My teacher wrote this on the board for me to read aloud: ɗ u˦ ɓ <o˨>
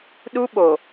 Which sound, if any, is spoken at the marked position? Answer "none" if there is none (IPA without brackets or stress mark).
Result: o˨